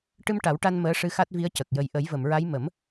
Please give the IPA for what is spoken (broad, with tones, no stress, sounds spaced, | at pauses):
ʈ ɨ˧ m ʈ a˨˩˦ w ʈ a˧ n m əː˧˥ ʂ ɨ˧ x a˦˥ t̚ v i˧˥ ə̯ c ə˨˩ k̚ j ə˨˩ j ʔ ə˨˩˦ j v ə˨˩˨ m ɹ a˧˥ j m ə˨˩˦ m